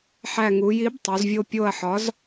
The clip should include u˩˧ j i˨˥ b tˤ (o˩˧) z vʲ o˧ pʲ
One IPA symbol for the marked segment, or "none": o˩˧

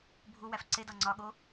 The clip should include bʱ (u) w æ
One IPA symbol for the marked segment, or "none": u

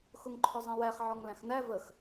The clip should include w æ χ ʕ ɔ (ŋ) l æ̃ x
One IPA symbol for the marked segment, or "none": ŋ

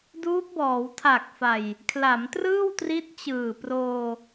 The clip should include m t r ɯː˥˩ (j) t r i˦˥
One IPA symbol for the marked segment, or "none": w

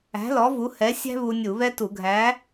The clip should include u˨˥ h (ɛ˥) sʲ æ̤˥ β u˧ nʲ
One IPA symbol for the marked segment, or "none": ɛ˨˥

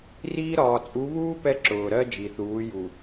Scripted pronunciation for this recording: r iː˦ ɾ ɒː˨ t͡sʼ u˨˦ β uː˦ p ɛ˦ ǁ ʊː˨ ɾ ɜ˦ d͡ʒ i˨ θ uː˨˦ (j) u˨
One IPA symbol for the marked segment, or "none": j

